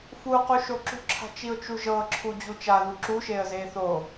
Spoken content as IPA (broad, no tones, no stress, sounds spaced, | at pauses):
f u q u ʃ o ǁ ṳ ǁʰ a̤ t͡ʃ i ʊ̯ t͡ʃ u ʒ ɤ ǁʰ u d͡ʑ u t͡ʃ a ð u ǁ u ʃ e ə̯ z e θ o